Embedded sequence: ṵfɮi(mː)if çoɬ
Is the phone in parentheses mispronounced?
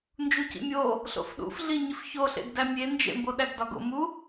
yes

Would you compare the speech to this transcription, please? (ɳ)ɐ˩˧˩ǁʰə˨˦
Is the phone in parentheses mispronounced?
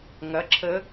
yes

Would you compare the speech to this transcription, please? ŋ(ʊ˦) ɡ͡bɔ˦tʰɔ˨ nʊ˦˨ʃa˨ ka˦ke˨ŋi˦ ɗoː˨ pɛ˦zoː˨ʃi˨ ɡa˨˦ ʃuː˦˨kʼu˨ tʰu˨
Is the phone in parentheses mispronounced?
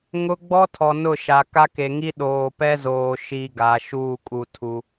no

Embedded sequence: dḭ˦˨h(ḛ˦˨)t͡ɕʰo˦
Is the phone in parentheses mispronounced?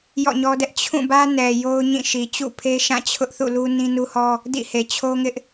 yes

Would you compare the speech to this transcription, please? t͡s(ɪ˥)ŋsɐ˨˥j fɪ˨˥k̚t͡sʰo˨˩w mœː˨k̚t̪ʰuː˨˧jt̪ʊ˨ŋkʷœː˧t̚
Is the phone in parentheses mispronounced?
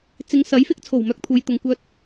yes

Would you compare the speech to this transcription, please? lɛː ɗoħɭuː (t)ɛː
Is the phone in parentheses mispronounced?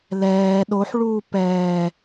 yes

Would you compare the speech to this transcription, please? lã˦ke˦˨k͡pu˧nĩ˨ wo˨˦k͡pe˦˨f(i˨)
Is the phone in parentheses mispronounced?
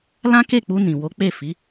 yes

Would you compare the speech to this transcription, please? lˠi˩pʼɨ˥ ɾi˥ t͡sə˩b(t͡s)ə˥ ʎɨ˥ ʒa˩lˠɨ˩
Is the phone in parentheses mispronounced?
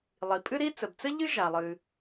no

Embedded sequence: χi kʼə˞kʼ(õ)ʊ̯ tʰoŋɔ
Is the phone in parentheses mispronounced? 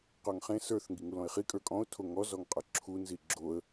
yes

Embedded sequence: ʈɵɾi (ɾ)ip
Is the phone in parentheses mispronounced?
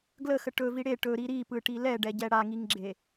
no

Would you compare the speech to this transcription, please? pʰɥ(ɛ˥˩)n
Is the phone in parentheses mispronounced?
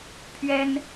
yes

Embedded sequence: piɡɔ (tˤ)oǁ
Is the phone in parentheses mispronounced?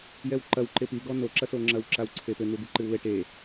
yes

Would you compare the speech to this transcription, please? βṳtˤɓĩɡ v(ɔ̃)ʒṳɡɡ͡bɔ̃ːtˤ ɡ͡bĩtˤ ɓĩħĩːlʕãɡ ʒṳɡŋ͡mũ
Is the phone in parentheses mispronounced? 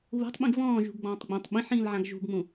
yes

